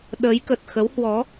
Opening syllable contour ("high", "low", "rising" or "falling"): rising